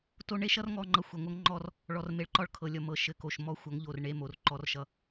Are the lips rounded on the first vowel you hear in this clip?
yes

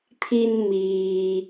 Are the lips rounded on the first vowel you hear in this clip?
no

